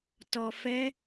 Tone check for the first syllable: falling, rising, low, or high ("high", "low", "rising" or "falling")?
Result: low